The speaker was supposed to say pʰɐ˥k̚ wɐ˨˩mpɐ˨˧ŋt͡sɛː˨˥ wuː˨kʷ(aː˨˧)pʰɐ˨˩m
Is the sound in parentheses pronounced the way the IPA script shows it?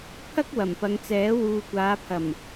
yes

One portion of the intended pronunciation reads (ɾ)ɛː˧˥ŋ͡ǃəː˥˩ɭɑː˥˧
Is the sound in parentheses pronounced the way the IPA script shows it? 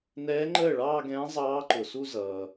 no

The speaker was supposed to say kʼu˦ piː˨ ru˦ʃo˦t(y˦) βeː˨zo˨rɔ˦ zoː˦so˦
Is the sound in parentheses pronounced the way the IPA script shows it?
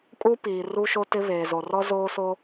no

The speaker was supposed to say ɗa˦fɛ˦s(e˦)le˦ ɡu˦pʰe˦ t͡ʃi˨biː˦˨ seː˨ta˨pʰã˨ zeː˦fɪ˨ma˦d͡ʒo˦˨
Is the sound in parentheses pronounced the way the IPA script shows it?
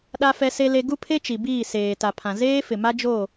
yes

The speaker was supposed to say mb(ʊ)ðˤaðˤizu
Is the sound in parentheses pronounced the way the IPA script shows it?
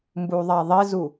no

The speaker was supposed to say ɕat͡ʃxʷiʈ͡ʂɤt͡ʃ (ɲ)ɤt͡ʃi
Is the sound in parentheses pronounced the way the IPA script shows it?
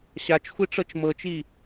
no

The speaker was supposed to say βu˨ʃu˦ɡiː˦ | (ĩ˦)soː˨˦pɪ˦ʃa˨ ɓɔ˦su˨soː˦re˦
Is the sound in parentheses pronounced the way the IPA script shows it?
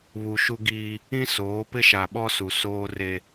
yes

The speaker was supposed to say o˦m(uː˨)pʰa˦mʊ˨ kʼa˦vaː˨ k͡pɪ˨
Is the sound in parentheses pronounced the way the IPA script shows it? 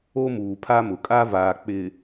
yes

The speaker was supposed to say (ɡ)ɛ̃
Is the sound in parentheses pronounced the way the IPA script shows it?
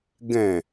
yes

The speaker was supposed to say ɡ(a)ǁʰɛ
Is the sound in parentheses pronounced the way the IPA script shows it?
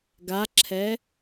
yes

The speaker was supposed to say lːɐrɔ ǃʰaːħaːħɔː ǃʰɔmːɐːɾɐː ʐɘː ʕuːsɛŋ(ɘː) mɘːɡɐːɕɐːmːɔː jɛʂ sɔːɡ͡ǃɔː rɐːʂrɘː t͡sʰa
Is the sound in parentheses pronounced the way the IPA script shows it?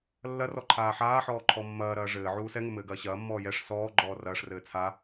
no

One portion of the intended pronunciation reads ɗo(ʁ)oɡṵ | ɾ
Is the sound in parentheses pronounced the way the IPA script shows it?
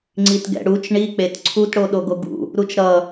no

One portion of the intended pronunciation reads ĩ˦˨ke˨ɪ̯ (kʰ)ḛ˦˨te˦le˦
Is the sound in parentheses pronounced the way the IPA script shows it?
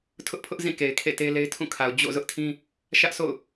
yes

